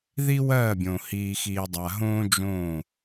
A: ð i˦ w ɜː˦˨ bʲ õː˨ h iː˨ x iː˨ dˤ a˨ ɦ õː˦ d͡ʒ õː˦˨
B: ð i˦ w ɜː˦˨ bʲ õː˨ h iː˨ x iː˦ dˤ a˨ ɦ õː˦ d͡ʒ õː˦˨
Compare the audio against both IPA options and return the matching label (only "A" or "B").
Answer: A